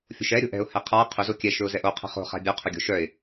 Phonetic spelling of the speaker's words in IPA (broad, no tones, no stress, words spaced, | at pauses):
fʲo̤ʃɛ ɾʲo̤ʔɛ̤ʊ̯ hɛqʰa qʰʏ zokʲɛ ʃɵʊ̯zɛʔo qʰɛ̤χo̤ χa̤bʲœ qʰɵɡʲo̤ʃœɪ̯